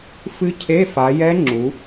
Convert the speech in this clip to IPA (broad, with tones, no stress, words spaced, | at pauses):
fɨ˦˥cʰe˧˥˧fa˨˦ jɛ˦˥ŋ͡ǁu˨˦